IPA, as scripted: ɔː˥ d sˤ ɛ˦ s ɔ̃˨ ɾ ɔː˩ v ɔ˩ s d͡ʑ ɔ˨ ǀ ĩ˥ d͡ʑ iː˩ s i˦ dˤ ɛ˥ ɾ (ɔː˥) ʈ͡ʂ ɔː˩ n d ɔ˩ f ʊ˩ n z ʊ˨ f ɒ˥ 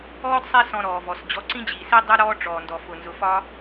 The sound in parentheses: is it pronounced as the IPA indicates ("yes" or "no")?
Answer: yes